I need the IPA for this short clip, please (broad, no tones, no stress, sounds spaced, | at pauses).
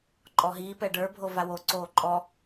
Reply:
ǃʼ ɔ ɦ iː p ɛ ɖ ə˞ bʱ o v a w o ǀ oː ǃʼ ɔ